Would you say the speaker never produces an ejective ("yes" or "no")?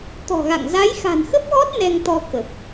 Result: yes